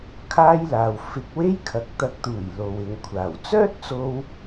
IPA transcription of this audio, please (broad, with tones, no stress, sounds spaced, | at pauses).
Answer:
kʰ aː˥ j l aː˨ w f ɪ˧ k̚ w e˥ j kʰ ɐ˨˥ k̚ t̪ ɐ˧ k̚ t̪ uː˨˩ j l o˨ w ɪ˨ ŋ kʷʰ aː˨˩ w t͡s œː˥ t̚ t͡s o˧ w